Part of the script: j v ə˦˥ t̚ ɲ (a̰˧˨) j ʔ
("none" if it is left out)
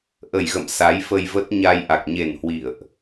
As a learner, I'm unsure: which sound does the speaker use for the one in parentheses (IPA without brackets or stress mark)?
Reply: a˧